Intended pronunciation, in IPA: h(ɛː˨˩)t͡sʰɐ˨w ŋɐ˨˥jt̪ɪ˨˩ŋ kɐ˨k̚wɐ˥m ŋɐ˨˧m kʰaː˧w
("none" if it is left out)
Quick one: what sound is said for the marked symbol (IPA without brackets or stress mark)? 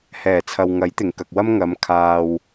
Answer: ɛː˨˩